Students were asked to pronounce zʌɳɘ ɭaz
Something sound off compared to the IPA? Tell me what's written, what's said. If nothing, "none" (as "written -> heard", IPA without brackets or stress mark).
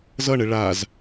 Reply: none